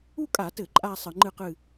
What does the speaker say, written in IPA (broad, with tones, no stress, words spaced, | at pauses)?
u˥˧kʼa˧˩˧tɘ˧˩˧ ǃʼa˥˧ sˤɨ˧˩˧ŋ͡ǃɨ˥˧qɨ˥˧